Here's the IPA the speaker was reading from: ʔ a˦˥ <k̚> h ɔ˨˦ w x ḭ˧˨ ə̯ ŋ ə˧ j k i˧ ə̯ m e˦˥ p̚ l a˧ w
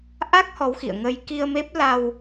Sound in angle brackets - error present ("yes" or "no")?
no